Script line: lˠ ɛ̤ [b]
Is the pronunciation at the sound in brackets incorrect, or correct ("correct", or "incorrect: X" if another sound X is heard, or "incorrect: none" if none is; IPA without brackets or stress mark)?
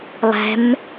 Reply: incorrect: m